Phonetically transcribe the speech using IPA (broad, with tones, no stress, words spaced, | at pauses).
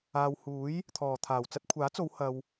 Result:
aː˨whuː˨˥j | t̪ʰɔː˨˩t̪ʰaː˨˩w t͡sɐ˧t̚kʷʰaː˨˥t͡so˨˧w hɐ˨w